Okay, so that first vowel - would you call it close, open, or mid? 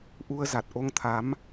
close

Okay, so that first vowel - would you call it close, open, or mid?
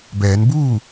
mid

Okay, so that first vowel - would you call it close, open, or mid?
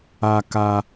open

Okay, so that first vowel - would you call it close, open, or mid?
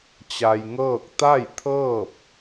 open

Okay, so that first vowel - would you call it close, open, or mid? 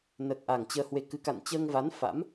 mid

